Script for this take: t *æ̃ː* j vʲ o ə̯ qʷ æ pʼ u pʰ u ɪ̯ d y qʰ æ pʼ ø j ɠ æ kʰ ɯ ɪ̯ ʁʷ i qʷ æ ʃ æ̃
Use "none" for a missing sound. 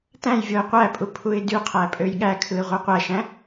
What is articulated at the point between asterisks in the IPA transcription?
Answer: æ̃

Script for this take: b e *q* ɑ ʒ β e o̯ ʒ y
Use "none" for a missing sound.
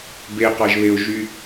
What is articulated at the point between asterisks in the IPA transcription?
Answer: q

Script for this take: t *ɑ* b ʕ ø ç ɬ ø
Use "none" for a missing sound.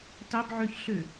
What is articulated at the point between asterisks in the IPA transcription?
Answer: ɑ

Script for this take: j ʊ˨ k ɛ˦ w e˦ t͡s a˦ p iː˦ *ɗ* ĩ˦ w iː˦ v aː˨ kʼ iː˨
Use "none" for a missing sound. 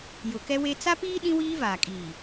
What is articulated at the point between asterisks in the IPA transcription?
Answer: ɗ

